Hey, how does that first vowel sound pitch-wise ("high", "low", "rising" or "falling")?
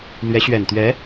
rising